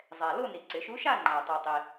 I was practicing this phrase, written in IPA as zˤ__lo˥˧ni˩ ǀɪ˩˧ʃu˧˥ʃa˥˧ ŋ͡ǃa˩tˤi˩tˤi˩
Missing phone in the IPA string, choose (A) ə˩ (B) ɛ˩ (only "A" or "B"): B